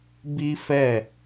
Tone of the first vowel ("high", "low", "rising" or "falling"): high